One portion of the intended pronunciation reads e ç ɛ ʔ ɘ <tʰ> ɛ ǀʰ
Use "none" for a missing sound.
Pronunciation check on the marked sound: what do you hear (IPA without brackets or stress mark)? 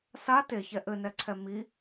n